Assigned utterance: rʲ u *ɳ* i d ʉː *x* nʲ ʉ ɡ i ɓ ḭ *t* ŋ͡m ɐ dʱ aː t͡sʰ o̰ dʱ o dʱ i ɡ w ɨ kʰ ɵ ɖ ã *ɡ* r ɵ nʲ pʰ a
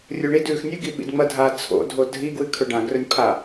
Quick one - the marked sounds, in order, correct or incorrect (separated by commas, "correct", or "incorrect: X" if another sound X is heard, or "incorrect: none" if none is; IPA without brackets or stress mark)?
correct, correct, incorrect: d, correct